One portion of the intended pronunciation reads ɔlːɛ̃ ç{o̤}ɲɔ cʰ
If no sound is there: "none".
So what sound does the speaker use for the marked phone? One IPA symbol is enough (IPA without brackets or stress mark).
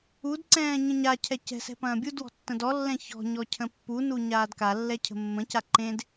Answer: ɔ̤